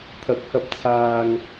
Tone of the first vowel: rising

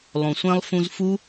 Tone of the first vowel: low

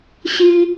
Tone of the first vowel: high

